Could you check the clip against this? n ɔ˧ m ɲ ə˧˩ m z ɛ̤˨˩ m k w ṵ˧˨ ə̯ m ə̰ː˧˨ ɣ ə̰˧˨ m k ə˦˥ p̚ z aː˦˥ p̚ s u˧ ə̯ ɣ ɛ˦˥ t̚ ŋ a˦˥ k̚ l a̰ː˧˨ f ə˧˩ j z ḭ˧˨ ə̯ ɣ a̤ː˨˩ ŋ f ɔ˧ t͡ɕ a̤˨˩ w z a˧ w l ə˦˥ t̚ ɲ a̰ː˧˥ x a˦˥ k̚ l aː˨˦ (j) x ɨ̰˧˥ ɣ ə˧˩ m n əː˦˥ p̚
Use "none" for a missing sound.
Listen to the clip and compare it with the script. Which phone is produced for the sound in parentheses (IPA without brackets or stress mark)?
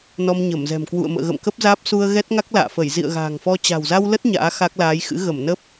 j